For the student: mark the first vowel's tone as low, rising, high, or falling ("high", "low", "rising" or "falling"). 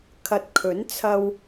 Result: low